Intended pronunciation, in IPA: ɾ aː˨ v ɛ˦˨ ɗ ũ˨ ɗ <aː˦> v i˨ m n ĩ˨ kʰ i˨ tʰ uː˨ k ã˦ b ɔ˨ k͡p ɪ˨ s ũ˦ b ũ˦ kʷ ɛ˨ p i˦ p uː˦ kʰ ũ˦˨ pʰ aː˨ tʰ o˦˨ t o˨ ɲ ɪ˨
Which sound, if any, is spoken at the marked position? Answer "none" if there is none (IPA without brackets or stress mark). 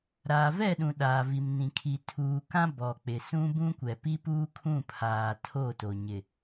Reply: aː˨